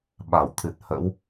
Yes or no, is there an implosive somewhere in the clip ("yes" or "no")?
yes